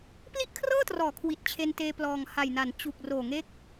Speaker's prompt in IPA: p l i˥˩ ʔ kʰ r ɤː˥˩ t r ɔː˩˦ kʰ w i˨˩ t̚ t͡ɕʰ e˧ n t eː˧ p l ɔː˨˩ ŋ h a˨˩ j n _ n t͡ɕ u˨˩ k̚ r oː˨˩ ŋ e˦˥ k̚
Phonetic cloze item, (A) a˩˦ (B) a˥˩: A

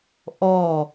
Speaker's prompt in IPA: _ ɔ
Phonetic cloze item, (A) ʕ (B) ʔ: B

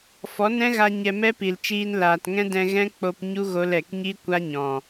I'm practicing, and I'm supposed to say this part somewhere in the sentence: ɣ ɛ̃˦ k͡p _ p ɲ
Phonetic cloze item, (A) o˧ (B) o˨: A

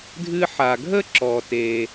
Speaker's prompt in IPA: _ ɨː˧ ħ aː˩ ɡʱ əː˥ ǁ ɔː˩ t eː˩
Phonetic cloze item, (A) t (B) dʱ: B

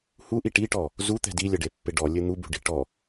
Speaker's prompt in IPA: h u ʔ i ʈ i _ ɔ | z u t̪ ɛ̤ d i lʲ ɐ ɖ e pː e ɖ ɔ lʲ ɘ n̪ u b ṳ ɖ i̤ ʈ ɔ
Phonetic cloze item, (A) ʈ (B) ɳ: A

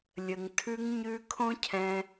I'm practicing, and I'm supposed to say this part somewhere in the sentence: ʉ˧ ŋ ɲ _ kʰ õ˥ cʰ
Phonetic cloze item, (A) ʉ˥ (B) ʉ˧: B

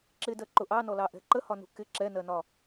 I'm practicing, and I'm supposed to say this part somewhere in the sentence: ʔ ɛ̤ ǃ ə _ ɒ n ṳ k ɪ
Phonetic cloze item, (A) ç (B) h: B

